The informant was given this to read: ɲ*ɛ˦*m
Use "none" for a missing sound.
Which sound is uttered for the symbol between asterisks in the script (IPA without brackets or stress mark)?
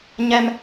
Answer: ɛ˦